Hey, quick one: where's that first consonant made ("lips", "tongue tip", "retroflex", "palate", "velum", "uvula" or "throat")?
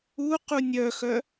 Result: uvula